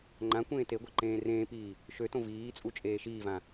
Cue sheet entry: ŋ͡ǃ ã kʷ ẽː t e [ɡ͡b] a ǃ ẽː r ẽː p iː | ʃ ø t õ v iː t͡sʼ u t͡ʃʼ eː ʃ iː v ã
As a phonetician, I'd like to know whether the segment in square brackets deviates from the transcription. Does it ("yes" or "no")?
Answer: yes